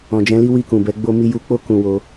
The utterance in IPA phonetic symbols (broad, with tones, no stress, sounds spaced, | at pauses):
ɔ̃˨ d͡ʒ ɛ̃˨˦ l i˦ w i˦˨ k ũ˨ b ɛ˨˦ ɡ͡b o˦ m i˧ j u˧ k͡p o˦ k ũ˧ w o˧